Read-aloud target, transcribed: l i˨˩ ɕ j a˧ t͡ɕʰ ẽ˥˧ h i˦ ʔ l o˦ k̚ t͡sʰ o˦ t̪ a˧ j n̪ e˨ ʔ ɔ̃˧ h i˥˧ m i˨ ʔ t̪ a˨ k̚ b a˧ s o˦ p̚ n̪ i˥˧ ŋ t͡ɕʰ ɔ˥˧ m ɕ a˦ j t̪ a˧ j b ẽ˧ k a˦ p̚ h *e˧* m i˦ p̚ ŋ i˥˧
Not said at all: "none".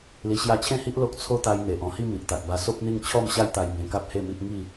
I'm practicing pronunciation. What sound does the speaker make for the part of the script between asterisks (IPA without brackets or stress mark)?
e˥˧